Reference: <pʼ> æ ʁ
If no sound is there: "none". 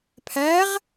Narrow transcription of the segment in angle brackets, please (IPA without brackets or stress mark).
pʰ